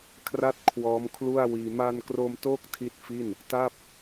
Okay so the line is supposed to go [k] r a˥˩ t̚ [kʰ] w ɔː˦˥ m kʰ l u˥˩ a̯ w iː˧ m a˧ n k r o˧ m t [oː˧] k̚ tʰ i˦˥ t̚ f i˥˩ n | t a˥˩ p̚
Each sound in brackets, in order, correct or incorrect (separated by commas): incorrect, correct, incorrect